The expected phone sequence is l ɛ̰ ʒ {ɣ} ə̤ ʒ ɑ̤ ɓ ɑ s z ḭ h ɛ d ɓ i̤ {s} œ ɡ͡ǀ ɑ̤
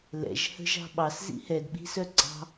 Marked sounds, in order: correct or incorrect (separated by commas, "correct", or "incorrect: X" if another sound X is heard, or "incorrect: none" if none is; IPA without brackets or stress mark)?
incorrect: h, correct